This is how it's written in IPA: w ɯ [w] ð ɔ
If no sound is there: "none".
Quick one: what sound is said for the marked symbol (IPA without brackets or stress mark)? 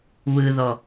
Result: none